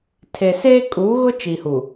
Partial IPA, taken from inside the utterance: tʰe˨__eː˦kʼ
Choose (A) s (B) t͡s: A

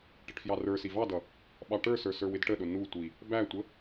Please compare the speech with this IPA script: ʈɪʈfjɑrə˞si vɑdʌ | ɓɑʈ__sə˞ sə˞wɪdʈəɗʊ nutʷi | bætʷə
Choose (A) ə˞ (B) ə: A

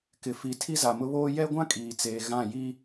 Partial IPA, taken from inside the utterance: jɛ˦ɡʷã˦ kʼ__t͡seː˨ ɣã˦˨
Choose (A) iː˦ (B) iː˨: B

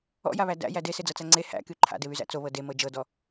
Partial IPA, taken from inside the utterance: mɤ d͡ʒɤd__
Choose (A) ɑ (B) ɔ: B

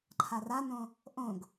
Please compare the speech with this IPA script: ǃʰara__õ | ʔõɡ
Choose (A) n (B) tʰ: A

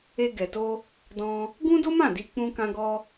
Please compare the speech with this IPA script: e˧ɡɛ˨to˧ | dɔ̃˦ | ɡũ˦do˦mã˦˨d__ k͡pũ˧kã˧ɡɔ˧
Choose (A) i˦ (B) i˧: B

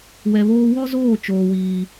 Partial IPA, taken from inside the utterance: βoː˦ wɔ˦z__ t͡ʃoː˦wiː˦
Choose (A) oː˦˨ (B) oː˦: A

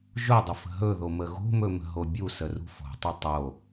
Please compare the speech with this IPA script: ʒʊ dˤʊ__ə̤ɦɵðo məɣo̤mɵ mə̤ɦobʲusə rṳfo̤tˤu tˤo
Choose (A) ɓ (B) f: B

